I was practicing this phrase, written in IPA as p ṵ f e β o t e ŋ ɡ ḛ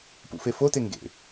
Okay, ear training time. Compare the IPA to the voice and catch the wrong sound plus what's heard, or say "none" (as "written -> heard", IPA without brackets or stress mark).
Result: β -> f